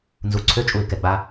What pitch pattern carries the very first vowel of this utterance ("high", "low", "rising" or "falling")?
low